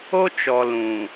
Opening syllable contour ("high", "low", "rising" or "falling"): high